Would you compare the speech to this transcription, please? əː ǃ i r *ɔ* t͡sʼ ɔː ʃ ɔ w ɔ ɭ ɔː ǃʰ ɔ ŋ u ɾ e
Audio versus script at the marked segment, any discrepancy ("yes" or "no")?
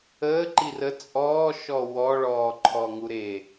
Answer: yes